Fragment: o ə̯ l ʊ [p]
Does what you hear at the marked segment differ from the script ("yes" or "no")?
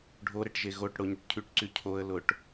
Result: yes